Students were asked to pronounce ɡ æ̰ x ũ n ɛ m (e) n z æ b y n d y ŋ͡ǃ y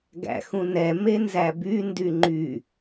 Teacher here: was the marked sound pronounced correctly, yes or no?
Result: yes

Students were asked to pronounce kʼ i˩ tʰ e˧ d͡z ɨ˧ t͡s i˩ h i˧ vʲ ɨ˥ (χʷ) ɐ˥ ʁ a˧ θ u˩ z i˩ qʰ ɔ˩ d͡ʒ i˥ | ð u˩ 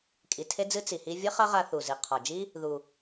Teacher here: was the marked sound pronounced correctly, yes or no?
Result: no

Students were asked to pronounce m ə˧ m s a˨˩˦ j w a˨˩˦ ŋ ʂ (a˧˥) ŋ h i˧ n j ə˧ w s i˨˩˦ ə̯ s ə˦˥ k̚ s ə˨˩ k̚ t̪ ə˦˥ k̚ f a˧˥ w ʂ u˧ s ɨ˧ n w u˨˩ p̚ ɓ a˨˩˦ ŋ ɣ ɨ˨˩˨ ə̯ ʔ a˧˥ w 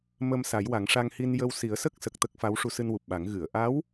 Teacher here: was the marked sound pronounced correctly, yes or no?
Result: no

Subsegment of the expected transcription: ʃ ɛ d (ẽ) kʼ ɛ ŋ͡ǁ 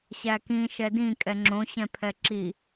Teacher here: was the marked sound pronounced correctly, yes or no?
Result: no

